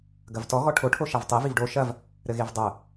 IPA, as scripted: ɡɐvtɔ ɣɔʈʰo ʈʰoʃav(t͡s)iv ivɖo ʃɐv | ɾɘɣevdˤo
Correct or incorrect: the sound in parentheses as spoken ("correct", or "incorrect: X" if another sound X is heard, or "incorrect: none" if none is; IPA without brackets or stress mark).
incorrect: tˤ